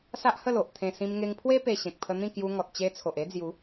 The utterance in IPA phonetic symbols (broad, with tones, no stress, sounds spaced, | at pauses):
s a˦ ʔ h ə˥˧ l o˨ ʔ t̪ʰ ẽ˧ s ĩ˧ m ŋ e˧ ŋ pʰ w e˦ p e˧ ɕ ẽ˨ k̚ pʰ ə˧ n̪ ĩ˥˧ k j u˧ ŋ ɔ˨ t̚ t͡ɕ e˧ t͡sʰ o˨ ʔ e˦ d͡z j u˨˦